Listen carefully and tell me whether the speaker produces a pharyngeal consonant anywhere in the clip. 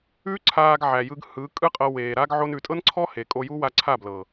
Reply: yes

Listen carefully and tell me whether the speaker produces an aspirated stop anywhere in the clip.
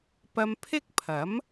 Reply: yes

